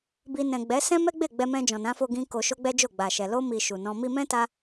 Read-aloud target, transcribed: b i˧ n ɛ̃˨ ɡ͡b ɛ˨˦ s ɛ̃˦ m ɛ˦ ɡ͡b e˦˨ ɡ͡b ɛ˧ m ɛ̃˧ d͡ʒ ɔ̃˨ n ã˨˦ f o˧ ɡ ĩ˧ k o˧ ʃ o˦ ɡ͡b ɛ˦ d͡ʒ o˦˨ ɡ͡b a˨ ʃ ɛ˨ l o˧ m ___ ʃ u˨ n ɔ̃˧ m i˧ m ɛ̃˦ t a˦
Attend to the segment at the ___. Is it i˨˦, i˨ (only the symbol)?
i˨